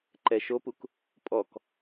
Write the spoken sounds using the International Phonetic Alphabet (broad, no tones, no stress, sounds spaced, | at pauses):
ǃ ɛ ʃ o p u k | pʼ ɔ k